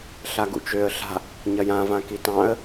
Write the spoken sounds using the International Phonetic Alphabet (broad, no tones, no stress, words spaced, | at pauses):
ɬaɡṵt͡ʃøə̯ ɬa̤ | ɲɐjã vãkitɑ̃ə̯